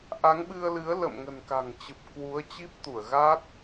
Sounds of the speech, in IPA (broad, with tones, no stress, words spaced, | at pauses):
ʔa˨˦ŋɓɨ˧ə̯lɨ˨˦ə̯ lə̰˧˨mŋə̤˨˩nka̤˨˩ŋt͡ɕɨ˨˩p̚ kwu˨˦ə̯ t͡ɕi˦˥p̚t̪u˧˩ə̯ɣa˦˥t̚